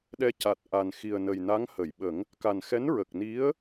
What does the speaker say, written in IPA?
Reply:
ɗɛ˧ ca˨˩t̚ ʔa˨˩n xi˨˩ə̯nə˨˩jna˧˥ŋ hə˨˩˨jɓə˨˩˦ŋ | ka˨˩n xɛ˧˥nɹə˨˩k̚ni˧˥ə̯

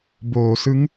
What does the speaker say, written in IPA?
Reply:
boː˩˦sɯ˦˥ŋ

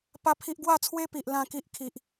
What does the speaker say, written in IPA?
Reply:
pa˦pʰi˦ʔ ɡwa˥˧t͡sʰwe˦pi˨ʔ lã˥˧ki˦ʔ kʰi˨ʔ

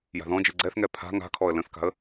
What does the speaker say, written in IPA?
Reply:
ja̤ðɔ̃d͡ʒɨ ɡ͡ǀɛθŋɛ pʰa̤ ŋa̤kʰɔə̯ lə̃θka̤ə̯

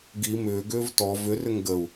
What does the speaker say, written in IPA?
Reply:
ɡi mʏːɡʏːv tɔ vʏrʏŋ ɡəu̯

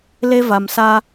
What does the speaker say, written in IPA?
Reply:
le˦va˨msa˦

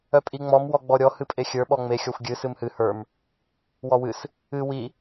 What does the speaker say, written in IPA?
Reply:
œpʼiŋ͡mɔm wɔɡ͡bɔɾʲɔ hɨpʼexʲə˞ ɓɔŋ͡me xʲɔxʷɡʲɨ sɨmhɨ hə˞m | wɔwɨs | ɨ wi

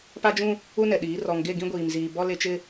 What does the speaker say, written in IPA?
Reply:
pa˦d͡ʒũ˦ | u˦nɛ˨ɗiː˨˦ rɔ˨ŋɡe˦˨ ɡĩ˦ɡʷiː˨mziː˨ bɔ˦le˦t͡ʃɪ˦

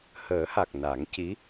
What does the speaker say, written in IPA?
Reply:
həː˨˩˦ha˨˩k̚ na˨˩˦ŋci˧˥

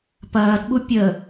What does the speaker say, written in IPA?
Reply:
pɐːdɓu pʲə

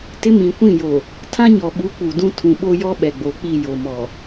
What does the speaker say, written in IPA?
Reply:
tɪ˦mĩ˨kʷĩ˦˨jo˨ | tʰã˦ɲɔ˨ɓu˨˦ k͡pu˨dũ˦ tʰũ˨ɓo˦jɔ˦ ɓɛ˨ɡ͡bo˨k͡pi˦˨ jo˨mɔ˨

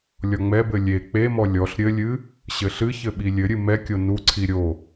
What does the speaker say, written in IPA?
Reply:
lʲɔŋ͡mɛbɘ lʲe k͡pemɔ lʲɔɬ ɾʲɘlʲɨ | ɕɘɬɨçɘ ɓilʲɘɾʲɨ mɛkʲo nuǀʰi ɾʲo

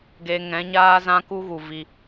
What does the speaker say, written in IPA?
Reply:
ɡe˧ ŋɛ̃˨˦ɲaː˦ zã˦ku˦ɣu˨ vi˧

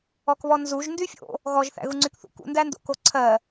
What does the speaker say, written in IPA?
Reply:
ɔkβɔnzuʒ ndyfʲo̰ | ɣɔʒ θæ̰ɣuŋ͡ǀykθṵ kṵndændo̰ko ǀʰɜ

